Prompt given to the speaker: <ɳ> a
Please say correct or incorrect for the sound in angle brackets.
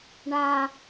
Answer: correct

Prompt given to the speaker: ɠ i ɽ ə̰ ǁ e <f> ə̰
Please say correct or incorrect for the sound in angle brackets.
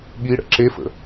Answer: correct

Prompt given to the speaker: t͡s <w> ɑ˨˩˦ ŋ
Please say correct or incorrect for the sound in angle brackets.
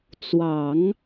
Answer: correct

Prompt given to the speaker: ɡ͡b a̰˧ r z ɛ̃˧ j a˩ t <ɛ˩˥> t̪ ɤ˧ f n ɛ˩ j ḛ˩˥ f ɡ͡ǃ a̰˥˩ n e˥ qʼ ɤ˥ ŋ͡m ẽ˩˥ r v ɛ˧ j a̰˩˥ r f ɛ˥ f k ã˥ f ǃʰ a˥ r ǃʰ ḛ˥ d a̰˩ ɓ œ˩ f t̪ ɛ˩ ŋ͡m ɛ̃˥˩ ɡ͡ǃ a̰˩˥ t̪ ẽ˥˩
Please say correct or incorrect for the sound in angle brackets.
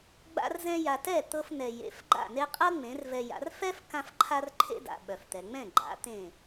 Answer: incorrect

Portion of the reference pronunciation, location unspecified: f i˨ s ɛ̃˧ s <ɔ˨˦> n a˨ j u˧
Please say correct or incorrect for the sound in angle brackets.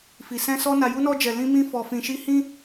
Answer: incorrect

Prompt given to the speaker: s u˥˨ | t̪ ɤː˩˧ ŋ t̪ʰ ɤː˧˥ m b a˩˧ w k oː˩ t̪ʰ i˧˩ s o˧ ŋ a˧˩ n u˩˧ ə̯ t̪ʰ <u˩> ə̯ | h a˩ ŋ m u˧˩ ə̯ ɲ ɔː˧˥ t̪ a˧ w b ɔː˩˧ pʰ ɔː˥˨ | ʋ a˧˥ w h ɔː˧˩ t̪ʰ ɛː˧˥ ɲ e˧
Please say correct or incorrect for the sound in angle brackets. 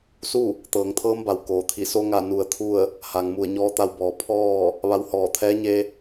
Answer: incorrect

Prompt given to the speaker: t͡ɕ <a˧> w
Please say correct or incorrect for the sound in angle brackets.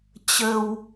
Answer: incorrect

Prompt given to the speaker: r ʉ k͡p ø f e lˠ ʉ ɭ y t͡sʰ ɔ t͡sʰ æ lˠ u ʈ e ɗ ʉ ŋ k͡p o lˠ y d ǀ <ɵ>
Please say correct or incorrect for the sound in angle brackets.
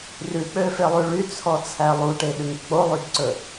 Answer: correct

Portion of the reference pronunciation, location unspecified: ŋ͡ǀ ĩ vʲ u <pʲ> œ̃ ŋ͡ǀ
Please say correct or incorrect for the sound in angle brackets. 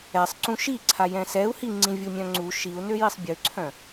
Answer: incorrect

